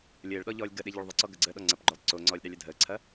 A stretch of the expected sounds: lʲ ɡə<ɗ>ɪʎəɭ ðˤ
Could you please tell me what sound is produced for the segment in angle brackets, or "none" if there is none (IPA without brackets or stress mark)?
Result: ɗ